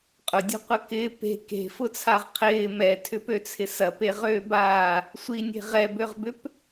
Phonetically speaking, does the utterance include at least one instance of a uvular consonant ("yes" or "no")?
yes